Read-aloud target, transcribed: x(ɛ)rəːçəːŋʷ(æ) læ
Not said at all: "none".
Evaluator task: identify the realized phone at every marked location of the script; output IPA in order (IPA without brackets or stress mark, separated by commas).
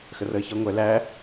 ə, ɛ